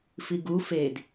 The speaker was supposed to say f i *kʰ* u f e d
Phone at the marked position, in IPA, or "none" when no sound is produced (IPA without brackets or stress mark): ɡ